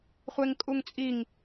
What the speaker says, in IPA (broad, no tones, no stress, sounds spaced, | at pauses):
χʷ e ŋ kʼ u ŋ t͡sʼ i ŋ